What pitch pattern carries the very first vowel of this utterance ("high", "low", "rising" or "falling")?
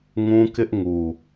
high